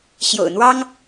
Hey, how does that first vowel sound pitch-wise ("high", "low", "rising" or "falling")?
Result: low